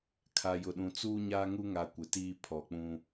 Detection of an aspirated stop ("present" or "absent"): present